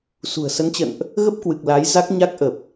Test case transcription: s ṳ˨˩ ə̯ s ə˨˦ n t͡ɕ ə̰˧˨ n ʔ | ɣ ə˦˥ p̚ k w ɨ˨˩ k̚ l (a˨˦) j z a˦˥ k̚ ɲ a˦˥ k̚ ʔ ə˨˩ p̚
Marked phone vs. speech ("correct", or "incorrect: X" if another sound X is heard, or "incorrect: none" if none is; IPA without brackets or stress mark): correct